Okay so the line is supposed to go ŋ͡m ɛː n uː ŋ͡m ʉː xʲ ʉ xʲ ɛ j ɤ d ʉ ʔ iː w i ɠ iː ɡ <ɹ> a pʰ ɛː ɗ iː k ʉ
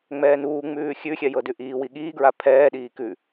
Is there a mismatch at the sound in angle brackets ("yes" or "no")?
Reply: no